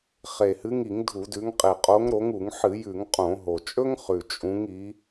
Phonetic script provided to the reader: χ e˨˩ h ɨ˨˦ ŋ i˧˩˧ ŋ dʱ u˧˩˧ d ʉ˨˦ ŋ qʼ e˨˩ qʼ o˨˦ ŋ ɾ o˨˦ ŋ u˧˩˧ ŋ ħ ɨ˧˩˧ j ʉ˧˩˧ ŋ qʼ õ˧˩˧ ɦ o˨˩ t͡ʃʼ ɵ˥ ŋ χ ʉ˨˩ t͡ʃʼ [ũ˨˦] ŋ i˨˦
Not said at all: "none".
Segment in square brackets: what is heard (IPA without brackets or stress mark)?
ũ˨˦